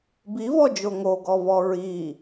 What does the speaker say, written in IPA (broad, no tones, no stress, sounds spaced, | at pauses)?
b i v ɔ d͡ʒ o ŋ o ɡ ɔ v ɔ ɹ i